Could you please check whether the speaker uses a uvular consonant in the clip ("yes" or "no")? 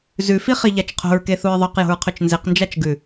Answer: yes